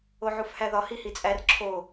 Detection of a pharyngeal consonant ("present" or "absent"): present